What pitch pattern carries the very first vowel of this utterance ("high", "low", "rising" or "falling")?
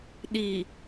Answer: low